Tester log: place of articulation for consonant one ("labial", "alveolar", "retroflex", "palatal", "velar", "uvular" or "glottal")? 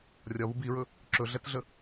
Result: alveolar